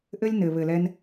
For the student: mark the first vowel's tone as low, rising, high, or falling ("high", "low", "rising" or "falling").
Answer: high